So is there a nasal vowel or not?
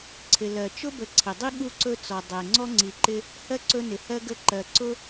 no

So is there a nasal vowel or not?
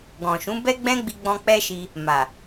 yes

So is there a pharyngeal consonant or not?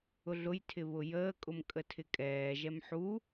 yes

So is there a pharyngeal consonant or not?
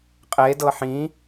yes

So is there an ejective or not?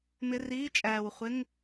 yes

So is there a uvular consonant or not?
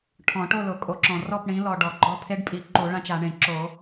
no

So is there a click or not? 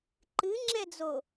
yes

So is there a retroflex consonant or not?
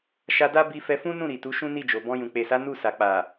no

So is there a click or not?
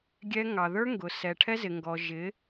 no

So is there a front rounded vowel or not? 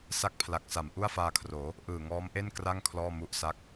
no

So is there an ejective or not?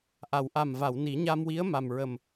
no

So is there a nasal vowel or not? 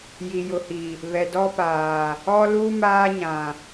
yes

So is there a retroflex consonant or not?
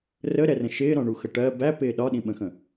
yes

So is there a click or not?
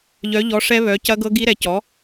no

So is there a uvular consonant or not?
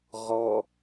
yes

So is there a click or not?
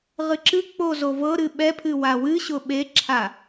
yes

